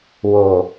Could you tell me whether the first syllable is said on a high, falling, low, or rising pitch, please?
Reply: low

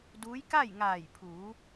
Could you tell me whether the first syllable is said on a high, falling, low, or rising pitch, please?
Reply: rising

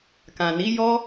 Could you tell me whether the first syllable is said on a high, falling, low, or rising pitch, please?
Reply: low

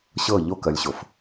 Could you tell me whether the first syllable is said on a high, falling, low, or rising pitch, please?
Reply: falling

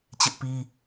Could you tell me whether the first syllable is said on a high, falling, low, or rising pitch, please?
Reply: high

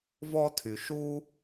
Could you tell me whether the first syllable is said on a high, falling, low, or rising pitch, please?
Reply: high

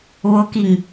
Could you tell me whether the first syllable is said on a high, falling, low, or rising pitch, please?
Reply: rising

